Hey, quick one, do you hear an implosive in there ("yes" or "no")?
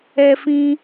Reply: no